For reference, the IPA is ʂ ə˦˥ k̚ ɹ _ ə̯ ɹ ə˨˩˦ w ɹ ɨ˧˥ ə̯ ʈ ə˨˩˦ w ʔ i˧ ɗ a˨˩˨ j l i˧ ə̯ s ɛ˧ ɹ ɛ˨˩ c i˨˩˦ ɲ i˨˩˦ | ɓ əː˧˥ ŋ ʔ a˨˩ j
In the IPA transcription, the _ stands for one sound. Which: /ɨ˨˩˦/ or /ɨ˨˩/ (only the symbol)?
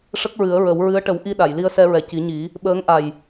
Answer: ɨ˨˩˦